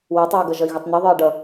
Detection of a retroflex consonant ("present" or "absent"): present